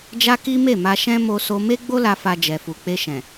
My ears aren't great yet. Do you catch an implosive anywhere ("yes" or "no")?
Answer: no